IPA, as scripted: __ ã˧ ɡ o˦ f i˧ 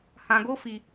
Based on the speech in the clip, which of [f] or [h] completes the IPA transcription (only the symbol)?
h